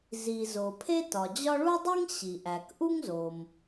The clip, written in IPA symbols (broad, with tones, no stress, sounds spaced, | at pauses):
z i˩ z o˩ pʰ e˥ t ɒ˩ d͡ʑ ɒ˥ ɭ u˥ dˤ i˥ ŋ ɕ i˩ ʔ æ˩ k ʔ u˥ ŋ z o˩ m